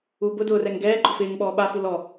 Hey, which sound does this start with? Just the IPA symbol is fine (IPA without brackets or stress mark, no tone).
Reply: uː